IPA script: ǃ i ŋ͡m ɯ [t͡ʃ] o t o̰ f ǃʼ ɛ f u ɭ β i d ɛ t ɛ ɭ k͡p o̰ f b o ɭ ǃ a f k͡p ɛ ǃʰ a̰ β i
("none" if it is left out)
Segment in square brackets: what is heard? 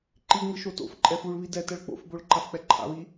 ʃ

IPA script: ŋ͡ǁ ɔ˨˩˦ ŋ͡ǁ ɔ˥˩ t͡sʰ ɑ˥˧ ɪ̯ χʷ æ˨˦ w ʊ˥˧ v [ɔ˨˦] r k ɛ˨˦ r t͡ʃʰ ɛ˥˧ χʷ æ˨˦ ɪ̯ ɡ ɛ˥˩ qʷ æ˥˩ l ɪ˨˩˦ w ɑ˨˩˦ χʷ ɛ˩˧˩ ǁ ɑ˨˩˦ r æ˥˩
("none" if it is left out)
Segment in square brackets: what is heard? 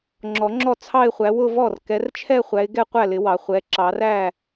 ɔ˥˩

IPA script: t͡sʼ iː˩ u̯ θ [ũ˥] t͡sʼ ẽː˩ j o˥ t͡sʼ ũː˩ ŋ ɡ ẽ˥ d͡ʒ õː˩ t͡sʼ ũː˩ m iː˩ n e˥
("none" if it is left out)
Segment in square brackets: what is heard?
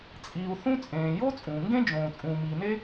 ũ˥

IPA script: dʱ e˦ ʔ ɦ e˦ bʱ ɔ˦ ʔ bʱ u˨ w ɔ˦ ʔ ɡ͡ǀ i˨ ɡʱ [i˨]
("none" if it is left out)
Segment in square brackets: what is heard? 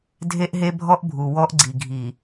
i˨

